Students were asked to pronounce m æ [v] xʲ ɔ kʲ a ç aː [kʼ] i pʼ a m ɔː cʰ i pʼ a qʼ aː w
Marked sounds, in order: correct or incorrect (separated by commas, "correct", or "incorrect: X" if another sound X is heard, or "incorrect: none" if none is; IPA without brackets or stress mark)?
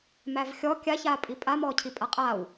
correct, incorrect: pʼ